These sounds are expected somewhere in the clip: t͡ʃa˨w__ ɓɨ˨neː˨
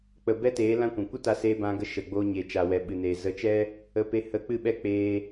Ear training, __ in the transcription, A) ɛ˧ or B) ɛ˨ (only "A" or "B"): B